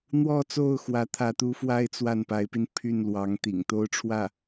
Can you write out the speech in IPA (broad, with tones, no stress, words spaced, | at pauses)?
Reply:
n̪wɔ˥˧t͡so˥˩ʊ̯ xwä˧˥t̪ʰä˧˥t̪u˧˥fwa˥ɪ̯ t͡swa˥˩npa˧˥ɪ̯pi˧n pʰy˥˩nlwɑ˧˥ŋ t̪ḭ˨˩ŋ t̪o˥ʊ̯ʈ͡ʂʰwä˥˩